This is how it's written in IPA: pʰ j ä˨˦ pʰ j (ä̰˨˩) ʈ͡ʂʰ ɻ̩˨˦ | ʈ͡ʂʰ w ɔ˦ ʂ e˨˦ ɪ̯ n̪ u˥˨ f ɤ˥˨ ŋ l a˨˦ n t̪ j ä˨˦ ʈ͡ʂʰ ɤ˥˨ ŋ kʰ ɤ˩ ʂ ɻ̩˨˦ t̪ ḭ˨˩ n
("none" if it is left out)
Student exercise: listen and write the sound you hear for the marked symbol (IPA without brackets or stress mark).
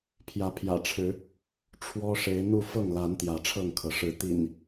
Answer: ä̰˨˩